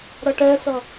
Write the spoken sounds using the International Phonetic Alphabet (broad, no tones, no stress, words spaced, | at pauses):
ɾʌʈɛsʌ